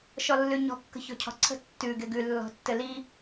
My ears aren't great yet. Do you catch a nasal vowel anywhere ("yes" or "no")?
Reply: no